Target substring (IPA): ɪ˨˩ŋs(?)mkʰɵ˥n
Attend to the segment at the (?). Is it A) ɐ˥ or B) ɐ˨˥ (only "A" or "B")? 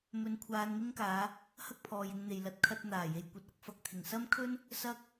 A